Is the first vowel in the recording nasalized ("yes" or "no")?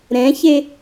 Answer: yes